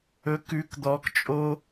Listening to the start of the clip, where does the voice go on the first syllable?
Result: rising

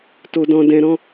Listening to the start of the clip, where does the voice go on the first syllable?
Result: low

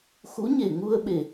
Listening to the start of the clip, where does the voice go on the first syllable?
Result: rising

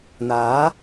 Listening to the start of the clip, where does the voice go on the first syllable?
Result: rising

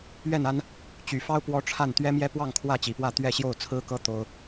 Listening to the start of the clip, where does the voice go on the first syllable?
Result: falling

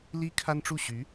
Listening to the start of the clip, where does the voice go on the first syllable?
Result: high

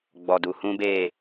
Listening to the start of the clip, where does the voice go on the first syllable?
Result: low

